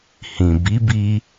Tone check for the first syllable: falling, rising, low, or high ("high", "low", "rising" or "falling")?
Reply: low